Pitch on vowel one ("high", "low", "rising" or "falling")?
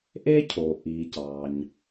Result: high